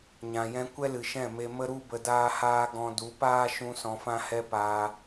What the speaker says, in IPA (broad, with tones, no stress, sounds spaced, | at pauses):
ɲ ã˨ j ɛ̃˧ kʷ ɛ˦ l ɨ˨ ʃ ɛ̃˦˨ m e˧ m ə˦ ɾ u˦ b ə˧ d aː˦ h aː˦ ɡ ɔ̃˧ d u˨˦ p aː˦ ʃ ũ˧ s ɔ̃˧ f ã˦ h ɛ˦ p aː˧